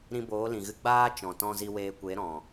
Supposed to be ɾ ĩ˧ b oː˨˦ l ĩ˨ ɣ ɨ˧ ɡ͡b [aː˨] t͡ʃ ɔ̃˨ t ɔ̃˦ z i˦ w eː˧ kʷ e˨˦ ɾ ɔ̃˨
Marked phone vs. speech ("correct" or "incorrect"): incorrect